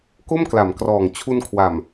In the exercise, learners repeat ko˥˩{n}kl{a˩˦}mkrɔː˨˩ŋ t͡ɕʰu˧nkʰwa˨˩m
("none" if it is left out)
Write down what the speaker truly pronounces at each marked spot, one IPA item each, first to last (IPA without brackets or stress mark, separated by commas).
m, a˩˦